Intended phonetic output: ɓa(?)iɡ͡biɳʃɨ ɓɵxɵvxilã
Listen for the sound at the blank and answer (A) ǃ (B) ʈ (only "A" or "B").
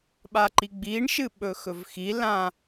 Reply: A